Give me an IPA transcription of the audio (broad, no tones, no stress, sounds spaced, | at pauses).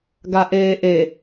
ɡ a ʔ eː ʔ e